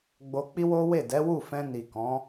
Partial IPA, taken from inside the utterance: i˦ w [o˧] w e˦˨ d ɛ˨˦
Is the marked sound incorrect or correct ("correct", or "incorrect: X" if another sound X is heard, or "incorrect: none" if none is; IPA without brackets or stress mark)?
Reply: incorrect: o˦